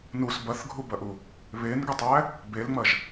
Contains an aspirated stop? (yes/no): no